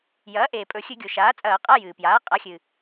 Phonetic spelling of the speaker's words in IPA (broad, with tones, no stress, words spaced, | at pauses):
jɐː˩˥ʔeː˩pʼɵ˧˩˧ xʲɨ˧˩˧ɡʲo˩ʃaː˩˥t͡sʼɐː˧˩˧ qʼa˧˥˧jɨː˩pjaː˩˥ qʼa˩˥xʲɨː˩